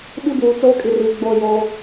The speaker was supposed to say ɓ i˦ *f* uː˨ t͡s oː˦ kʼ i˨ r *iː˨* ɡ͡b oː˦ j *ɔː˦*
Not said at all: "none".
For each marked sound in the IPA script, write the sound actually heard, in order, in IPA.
b, iː˨, oː˦

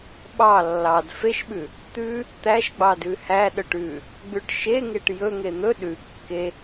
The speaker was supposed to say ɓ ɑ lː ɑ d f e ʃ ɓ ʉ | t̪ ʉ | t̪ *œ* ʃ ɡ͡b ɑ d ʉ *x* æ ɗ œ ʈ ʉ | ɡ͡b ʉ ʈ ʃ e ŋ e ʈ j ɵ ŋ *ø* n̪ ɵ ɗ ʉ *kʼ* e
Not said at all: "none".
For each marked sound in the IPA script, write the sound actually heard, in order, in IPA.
æ, h, e, kː

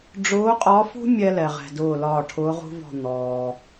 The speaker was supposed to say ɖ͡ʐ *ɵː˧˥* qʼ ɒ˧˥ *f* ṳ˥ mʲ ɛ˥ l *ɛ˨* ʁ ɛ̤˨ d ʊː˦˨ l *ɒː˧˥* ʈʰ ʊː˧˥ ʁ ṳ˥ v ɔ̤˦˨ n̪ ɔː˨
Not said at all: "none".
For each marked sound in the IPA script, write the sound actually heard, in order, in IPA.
ʊː˧˥, f, ɛ˨, ɒː˦˨

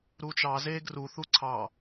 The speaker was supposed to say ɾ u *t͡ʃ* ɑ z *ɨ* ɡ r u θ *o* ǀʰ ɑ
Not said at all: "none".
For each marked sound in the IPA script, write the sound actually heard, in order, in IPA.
t͡ʃ, e, u

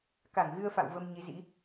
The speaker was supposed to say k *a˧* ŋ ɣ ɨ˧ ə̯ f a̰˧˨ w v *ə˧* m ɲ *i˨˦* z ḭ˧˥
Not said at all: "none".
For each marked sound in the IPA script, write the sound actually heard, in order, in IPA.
a˧˩, ə˧, i˨˦

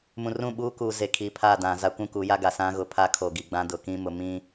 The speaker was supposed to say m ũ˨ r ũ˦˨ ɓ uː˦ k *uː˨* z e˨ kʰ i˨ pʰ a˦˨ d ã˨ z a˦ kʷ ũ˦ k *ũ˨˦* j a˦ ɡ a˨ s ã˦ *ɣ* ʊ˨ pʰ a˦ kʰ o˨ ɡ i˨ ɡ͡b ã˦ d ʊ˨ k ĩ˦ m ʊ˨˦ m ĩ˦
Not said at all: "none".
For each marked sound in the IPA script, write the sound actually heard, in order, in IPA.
uː˨, u˨˦, ɣ

